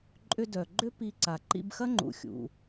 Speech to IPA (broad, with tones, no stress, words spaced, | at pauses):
ǃʼʏ˧ dœ˩ɡ͡ǃʏ˥ pi˧ǀa˩ ǃḭ˧bxɐ˥ŋ͡ǃṵ˩xʲṵ˩